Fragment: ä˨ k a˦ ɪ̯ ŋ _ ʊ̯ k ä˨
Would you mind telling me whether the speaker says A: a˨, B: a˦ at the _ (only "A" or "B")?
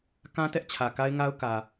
B